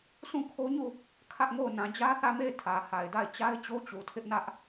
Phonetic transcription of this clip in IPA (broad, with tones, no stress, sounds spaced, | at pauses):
sʰ ũ˦˨ kʰ o˦ ɲ u˦˨ | kʰ ä˦ ʔ ŋ o˦˨ ʊ̯ n ã˨ d͡ʑ ä˦ θ ä˦˨ m e˦˨ ɪ̯ tʰ ä˨ h a˨ ɪ̯ d a˦˨ ɪ̯ t͡ɕ a˦ ɪ̯ t͡ɕ o˦ t͡ɕ u˨ tʰ ɪ˦ ʔ n ä˦ ʔ